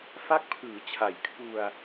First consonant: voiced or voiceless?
voiceless